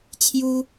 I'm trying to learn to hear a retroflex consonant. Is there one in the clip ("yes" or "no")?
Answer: no